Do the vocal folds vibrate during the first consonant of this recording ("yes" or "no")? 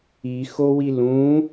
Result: no